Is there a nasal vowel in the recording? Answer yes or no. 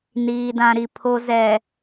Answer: yes